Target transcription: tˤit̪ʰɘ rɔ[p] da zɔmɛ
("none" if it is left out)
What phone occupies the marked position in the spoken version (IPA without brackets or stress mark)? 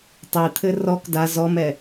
k